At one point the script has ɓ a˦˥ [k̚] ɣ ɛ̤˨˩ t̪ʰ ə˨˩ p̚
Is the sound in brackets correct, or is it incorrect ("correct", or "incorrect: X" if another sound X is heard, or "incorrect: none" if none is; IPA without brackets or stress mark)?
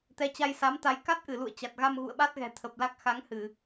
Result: incorrect: t̚